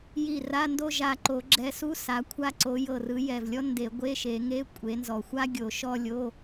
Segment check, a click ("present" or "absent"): present